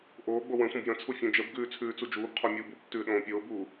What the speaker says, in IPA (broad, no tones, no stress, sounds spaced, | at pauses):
ʔ oː ɡ͡b o w ə̃ sʷ ə̃ b j ə̃ t͡sʰ u fʲ ũ d͡ʒ ə b ɡ ʉː t͡sʰ ʉː t͡s u d͡ʒ uː b qʰ o mʲ uː b u b tː ʉː ɗ õː pʲ oː b uː